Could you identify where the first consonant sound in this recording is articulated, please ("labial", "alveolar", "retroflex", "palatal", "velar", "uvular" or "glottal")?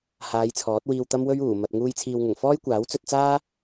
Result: glottal